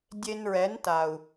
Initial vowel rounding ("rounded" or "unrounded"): unrounded